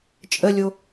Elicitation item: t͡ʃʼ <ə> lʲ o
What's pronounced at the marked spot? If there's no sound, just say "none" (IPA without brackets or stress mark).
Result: ə